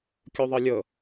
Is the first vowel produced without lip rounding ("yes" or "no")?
no